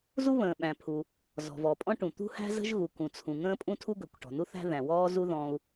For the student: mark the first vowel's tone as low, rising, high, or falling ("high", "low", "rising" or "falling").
high